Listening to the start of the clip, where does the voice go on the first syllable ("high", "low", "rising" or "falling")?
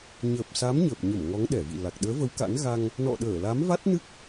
low